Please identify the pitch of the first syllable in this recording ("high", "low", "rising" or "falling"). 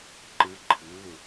rising